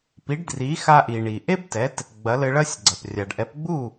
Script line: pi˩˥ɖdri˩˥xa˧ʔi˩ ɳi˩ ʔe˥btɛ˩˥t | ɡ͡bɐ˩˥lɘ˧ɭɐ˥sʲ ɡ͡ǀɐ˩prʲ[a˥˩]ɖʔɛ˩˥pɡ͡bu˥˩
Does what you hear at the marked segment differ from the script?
yes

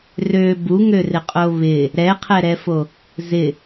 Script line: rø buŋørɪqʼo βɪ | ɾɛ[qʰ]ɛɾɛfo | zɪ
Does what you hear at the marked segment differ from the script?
no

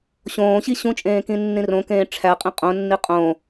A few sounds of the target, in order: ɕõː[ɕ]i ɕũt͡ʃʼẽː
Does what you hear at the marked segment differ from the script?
no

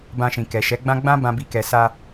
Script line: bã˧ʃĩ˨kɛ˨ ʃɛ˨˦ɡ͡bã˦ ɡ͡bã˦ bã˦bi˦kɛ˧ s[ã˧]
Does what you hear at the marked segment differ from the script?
yes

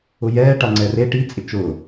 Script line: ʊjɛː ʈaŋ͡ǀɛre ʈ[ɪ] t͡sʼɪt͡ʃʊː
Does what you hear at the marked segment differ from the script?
yes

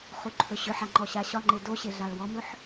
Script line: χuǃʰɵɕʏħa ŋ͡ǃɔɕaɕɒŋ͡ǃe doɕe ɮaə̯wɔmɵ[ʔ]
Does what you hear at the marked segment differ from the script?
yes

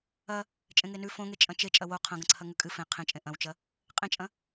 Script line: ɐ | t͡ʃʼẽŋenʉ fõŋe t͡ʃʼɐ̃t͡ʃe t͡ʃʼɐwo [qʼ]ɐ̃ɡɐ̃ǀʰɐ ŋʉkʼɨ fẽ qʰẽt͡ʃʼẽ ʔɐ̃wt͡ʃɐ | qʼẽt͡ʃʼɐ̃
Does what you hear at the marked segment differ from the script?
yes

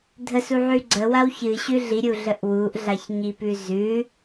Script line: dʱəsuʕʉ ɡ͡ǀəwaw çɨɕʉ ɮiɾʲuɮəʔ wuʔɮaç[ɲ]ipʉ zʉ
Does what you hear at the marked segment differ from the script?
no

